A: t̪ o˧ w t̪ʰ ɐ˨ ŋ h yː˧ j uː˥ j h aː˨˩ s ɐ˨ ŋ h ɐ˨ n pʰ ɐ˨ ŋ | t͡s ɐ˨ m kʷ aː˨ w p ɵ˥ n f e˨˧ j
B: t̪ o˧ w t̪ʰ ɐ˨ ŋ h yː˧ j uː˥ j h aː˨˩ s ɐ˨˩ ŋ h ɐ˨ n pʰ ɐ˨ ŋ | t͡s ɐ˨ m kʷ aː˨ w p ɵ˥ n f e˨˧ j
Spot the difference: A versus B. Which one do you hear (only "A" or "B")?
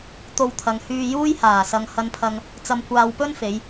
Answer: A